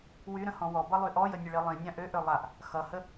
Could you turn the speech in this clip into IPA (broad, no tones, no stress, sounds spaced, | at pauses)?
w y ɾ ə̃ h ɔ̃ w ɔ b ʌ lˠ y ʔ ɔ j ə nʲ ə ɭ i lˠ ĩ nʲ ã ʔ ø ʔ ø lˠ a ʔ | x ʌ h ə